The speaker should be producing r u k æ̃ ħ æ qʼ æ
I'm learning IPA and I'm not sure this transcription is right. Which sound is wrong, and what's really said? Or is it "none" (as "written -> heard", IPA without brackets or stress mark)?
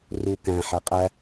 none